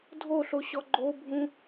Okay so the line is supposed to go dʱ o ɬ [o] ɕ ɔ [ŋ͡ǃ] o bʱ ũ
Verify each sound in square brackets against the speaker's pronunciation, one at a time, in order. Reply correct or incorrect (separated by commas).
correct, incorrect